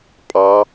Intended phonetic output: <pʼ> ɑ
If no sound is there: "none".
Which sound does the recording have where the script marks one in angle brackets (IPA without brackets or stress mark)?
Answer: pʼ